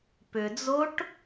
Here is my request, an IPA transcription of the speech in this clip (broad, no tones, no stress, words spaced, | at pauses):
pʏd͡zoʈ